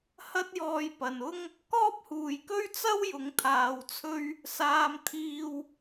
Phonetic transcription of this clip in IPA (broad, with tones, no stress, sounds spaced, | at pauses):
h ɐ˥ t̚ j ɔː˧ j p ɐ˨ n ʊ˥ ŋ | k ɔː˥ p̚ h uː˨ j k ɵ˥ ɥ t͡s ɐ˥ w j ʊ˨˧ ŋ t̪ʰ aː˨ w t͡sʰ ɵ˧ ɥ | s aː˧ m t̪ʰ iː˧ w